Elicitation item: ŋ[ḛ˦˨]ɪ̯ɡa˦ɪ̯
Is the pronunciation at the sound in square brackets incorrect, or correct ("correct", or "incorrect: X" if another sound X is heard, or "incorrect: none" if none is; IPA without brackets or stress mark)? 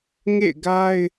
correct